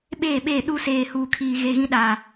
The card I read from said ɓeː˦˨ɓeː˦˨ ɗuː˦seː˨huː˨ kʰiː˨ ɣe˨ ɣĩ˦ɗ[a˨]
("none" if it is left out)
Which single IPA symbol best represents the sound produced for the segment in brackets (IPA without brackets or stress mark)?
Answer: a˨